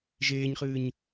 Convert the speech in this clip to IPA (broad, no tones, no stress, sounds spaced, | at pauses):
ʒ eː ɲ χ ɨː ɲ